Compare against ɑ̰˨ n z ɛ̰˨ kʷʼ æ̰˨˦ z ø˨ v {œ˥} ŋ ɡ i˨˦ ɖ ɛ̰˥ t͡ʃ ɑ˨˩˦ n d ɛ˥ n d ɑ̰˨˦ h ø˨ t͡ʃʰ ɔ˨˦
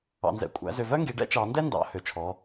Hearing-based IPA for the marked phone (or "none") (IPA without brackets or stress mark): œ˥